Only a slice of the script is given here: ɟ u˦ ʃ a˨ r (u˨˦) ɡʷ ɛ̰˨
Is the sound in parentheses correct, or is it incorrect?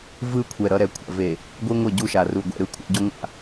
incorrect